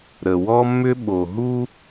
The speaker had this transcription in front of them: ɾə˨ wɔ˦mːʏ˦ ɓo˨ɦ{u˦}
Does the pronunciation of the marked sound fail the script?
no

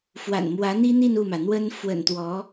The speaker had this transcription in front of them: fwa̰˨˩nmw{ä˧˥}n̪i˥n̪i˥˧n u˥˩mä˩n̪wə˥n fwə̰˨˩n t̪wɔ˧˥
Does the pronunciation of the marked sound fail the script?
no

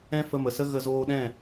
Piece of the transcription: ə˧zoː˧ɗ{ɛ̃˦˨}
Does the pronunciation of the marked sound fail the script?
no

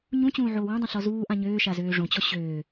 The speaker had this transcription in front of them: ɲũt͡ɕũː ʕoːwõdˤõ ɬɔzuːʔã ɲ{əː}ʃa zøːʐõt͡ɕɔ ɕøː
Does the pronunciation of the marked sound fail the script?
yes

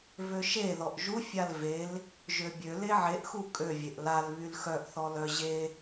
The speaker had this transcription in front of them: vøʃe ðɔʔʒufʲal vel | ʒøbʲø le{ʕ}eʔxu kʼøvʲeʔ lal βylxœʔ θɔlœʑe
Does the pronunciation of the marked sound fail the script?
no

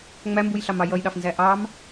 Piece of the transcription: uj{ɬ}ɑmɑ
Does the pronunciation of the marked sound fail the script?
no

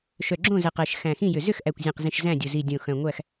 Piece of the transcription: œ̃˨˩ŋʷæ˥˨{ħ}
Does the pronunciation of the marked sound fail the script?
yes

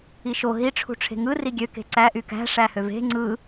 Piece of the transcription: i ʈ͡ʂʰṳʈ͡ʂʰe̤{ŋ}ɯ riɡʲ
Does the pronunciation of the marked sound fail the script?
no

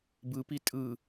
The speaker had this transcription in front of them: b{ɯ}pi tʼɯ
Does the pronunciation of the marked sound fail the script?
no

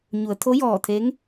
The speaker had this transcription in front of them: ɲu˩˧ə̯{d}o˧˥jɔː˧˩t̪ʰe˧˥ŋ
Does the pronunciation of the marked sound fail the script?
yes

